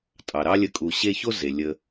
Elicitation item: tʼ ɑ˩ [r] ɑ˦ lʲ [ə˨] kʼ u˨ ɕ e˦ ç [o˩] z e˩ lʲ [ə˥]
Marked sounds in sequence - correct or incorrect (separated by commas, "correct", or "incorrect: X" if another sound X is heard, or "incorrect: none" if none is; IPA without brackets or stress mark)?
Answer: incorrect: ɾ, correct, incorrect: o˥, incorrect: ə˨